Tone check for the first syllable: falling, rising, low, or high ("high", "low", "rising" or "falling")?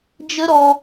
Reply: high